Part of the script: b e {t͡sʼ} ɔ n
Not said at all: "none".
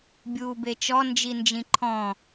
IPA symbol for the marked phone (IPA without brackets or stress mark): t͡ʃ